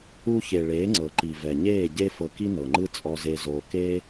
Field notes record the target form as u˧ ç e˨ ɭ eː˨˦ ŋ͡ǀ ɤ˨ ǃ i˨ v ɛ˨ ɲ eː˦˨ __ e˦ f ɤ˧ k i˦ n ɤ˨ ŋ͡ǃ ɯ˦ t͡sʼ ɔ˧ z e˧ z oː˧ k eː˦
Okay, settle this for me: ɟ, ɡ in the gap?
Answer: ɟ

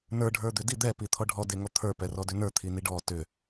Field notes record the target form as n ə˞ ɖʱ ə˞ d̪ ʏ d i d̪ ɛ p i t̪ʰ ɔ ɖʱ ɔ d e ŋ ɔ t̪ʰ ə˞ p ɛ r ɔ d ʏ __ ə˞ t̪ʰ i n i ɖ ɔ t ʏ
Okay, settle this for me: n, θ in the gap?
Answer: n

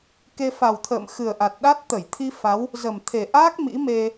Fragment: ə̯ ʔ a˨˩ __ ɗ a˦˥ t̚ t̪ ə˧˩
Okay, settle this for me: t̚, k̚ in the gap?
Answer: t̚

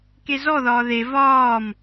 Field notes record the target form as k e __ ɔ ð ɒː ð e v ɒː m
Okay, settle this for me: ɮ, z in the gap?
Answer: z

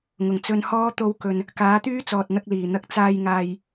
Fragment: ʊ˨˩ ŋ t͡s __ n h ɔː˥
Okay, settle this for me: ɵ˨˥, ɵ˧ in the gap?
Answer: ɵ˧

